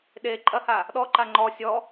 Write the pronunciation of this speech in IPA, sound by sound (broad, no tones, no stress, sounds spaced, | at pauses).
ɗ e ǃʼ ɐ h a | ɗ ɔ ǃ a ŋ͡ǃ ɔ sʲ ɔ